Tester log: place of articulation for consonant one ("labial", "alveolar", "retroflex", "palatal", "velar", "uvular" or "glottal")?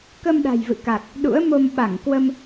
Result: velar